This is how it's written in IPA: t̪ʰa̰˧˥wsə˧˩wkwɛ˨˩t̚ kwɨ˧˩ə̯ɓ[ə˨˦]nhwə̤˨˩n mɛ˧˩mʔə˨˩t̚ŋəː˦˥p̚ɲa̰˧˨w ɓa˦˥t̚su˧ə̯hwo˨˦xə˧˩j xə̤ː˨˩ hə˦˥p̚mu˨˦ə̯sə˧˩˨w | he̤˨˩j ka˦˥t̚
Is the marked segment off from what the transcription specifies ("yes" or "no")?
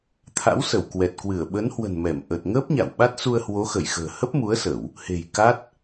no